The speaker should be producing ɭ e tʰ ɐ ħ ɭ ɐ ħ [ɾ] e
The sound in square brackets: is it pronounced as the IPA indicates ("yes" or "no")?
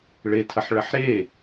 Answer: yes